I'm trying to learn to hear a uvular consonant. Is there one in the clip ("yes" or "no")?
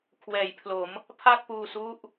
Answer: no